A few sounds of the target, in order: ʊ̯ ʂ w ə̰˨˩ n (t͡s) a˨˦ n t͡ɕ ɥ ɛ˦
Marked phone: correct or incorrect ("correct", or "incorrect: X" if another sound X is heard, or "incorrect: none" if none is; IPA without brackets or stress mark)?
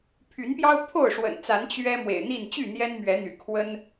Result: correct